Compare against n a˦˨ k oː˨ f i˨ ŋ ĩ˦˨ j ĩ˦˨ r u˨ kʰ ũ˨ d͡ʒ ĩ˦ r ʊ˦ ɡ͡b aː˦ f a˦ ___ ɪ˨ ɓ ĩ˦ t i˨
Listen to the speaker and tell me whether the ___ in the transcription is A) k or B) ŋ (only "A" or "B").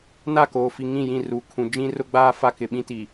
A